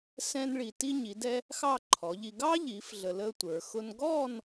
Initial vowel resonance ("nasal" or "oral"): nasal